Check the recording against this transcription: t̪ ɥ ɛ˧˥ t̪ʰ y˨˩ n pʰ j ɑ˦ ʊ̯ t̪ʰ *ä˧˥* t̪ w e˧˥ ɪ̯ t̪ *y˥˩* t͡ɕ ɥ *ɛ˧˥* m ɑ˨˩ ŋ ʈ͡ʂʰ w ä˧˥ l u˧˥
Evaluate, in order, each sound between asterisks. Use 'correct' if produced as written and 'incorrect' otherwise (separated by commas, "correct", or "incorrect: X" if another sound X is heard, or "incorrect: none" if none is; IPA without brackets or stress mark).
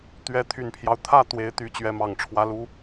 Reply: incorrect: ä˥˩, incorrect: y˧˥, correct